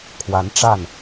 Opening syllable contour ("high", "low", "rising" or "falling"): rising